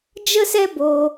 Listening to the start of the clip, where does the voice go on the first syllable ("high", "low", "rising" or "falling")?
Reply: high